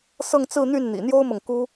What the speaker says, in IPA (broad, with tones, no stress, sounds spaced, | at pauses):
s ɤ˥˧ ŋ t͡s ɹ̩˥˧ n̪ y˥˩ n n̪ ḭ˨˩ n̪ j o˥ ʊ̯ m ɤ˨ ŋ k u˥